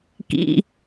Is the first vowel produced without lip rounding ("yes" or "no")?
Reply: yes